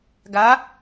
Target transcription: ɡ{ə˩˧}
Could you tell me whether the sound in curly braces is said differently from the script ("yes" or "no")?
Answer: yes